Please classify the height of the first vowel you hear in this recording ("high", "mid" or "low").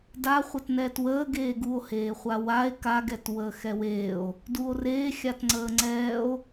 low